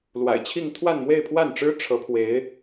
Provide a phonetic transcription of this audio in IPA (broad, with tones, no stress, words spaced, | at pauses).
lwa̰˨˩ɪ̯t͡ɕʰi˥˧ŋ t̪ʰwa˥˧nmwe˥˧ɪ̯pʰwa˥˩nʈ͡ʂɻ̩˥ ʈ͡ʂʰɤ˧˥pʰwe˧˥ɪ̯